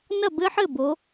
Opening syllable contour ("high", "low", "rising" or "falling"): falling